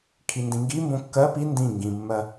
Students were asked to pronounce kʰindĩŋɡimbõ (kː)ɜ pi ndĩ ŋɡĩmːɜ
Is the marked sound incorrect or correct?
correct